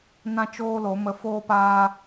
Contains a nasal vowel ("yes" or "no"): yes